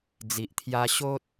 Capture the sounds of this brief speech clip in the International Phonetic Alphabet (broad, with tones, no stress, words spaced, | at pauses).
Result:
d͡zi˨ʔt̪ʰja˧ ɕo˦t̚